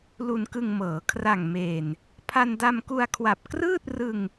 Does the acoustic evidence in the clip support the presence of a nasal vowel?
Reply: no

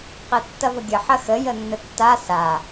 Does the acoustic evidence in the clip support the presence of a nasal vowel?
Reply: no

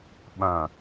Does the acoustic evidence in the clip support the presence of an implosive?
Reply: yes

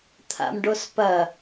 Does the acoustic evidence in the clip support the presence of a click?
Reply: no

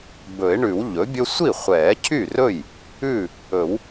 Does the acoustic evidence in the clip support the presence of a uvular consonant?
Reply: yes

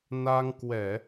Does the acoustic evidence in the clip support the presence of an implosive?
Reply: no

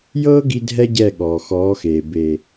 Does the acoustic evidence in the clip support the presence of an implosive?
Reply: yes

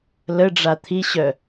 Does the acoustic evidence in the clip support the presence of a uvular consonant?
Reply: no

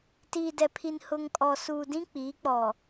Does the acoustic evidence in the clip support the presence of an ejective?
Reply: yes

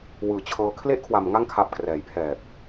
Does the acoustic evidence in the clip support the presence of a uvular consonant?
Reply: no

